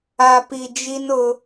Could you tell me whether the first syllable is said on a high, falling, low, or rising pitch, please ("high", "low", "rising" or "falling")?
low